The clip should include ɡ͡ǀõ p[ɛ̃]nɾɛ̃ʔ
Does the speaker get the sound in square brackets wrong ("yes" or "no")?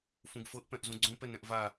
yes